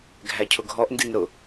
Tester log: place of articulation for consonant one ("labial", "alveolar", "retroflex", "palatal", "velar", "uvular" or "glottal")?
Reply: velar